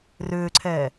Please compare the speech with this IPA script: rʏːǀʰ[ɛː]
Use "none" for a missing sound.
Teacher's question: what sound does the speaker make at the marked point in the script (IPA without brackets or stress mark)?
ɛː